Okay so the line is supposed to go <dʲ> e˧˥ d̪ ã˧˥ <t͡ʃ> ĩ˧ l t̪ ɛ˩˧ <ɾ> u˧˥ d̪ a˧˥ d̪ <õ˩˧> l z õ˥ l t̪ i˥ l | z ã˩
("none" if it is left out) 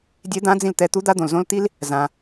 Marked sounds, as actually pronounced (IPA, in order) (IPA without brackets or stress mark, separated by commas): dʲ, d͡z, t̪, õ˩